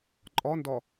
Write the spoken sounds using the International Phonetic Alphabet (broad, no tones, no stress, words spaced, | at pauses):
ǃʼɒndɒ